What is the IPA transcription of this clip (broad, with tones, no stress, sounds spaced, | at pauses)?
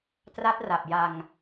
t r a˦˥ t̚ r a˨˩ p̚ j a˧ ŋ